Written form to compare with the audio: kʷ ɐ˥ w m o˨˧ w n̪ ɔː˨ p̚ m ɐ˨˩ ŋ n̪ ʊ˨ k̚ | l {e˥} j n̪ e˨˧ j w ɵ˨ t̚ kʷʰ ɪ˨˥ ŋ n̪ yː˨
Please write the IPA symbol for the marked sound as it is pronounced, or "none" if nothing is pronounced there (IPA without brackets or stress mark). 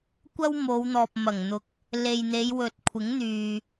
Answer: e˨